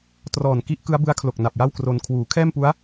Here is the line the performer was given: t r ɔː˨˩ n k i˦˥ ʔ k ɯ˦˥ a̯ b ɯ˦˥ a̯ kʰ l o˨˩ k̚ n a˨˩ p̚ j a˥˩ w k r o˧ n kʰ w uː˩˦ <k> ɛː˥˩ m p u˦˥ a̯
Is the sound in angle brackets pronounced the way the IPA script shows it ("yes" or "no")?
no